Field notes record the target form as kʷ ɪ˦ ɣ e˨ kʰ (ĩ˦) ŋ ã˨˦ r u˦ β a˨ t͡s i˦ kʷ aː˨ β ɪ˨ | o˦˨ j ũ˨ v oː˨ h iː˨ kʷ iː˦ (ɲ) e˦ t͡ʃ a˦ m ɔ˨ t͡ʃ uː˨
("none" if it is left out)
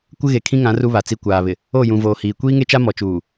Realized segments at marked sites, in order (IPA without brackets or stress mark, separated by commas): ĩ˦, ŋ